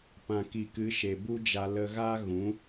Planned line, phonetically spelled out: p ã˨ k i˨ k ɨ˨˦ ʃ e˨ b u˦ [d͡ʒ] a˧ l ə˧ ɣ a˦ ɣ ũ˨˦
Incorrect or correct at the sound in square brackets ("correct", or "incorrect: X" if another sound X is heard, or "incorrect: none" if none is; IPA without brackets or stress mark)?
correct